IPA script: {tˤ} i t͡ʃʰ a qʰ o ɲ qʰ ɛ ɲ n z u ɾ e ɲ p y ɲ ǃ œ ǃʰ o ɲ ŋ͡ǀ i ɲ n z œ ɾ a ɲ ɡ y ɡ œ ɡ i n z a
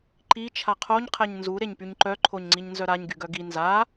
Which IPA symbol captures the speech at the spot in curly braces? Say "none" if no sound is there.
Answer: ǃ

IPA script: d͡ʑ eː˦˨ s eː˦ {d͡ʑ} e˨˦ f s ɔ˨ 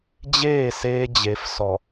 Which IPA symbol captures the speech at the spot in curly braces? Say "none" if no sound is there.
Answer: d͡ʑ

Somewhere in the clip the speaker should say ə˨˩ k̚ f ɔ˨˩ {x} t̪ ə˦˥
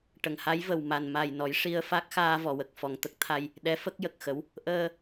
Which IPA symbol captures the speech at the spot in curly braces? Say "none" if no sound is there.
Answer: ŋ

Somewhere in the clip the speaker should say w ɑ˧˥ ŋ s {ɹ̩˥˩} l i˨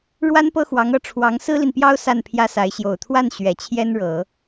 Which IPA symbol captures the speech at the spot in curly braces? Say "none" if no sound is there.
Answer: ɹ̩˥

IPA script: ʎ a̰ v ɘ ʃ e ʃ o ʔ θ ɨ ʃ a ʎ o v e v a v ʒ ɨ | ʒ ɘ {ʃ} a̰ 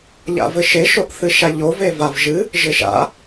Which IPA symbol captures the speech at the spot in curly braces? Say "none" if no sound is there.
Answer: ʃ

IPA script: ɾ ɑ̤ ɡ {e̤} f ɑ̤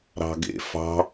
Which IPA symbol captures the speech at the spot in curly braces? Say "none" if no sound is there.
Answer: ḛ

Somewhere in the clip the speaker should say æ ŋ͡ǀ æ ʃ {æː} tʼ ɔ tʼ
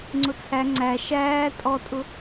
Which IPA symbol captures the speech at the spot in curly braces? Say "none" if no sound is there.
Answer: æː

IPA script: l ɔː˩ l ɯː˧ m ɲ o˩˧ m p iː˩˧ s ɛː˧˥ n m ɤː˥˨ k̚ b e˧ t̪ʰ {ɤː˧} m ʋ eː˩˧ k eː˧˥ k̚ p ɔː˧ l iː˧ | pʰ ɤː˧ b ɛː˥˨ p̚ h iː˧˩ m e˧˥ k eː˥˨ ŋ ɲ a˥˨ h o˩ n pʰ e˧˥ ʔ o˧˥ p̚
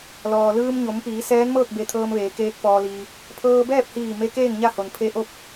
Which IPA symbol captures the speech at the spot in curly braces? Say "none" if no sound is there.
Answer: ɤː˧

